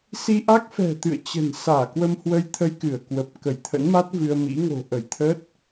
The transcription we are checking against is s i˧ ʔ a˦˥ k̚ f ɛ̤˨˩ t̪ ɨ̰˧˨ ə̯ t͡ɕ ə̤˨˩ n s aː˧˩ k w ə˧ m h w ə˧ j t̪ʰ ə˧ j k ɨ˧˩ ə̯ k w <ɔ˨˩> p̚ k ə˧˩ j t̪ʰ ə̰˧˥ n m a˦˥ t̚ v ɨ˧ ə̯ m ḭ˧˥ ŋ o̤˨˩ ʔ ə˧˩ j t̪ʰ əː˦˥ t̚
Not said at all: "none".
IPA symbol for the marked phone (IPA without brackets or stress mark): ə˨˩